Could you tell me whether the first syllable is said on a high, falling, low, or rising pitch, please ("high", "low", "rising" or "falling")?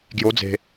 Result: rising